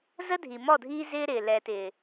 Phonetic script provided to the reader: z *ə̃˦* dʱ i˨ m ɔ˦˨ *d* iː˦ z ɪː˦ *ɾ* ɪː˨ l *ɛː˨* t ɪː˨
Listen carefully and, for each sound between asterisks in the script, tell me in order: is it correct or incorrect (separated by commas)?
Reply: incorrect, incorrect, correct, correct